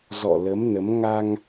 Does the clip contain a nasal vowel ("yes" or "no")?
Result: no